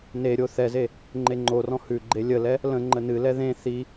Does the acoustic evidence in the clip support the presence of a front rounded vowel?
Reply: no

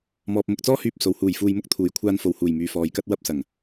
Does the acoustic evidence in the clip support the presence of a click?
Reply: no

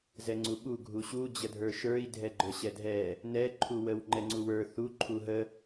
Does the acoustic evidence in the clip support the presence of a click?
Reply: yes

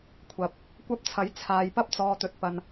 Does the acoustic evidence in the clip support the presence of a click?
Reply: no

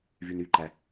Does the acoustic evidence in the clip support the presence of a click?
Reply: yes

